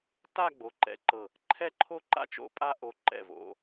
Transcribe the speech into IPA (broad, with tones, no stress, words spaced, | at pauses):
ta˥˧ɡ͡bo˩˧ ǃɛ̰˧˩ǃɤ˧˩ | ǃʰɛ˥ǃʰo˥ ǃa̰˥t͡ʃo̰˧pʼa˥˧ ʔo˧˩ǃɛ̰˧˩ vo̰˩˧